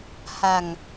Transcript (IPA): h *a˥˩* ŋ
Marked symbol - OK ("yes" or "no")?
no